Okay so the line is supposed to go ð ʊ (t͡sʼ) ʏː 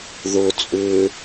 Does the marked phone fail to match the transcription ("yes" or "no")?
no